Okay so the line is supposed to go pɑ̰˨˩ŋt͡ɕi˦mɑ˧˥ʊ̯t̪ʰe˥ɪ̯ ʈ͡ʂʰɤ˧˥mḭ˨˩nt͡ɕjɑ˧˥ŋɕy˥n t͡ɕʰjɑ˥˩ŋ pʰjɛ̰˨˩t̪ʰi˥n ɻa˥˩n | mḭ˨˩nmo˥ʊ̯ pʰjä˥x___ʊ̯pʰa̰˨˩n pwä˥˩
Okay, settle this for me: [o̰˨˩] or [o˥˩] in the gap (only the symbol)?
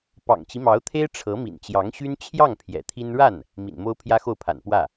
o˥˩